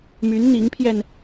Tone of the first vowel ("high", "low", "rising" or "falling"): rising